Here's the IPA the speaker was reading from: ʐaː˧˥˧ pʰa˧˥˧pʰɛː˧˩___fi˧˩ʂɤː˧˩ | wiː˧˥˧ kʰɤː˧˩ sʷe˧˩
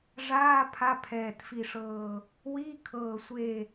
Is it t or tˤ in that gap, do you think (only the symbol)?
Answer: t